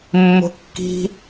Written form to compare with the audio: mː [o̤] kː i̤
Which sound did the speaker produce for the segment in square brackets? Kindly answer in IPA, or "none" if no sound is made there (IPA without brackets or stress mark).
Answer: o̤